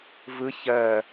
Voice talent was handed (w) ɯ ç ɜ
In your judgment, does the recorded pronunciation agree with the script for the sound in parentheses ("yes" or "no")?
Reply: no